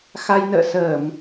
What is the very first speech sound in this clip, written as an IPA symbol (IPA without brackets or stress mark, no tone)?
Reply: x